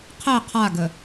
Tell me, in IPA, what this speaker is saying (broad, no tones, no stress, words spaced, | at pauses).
qʰɛ qʰaɡə